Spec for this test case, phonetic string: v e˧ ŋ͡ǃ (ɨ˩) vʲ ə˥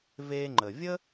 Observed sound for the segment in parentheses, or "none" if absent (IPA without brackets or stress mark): ə˩